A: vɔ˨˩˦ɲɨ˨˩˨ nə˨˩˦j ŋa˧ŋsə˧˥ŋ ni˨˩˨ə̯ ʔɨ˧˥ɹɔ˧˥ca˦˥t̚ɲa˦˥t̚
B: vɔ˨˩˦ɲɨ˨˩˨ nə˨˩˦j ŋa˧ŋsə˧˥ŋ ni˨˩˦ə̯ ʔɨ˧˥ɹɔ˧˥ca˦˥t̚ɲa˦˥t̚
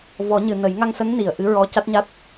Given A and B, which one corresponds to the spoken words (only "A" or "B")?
A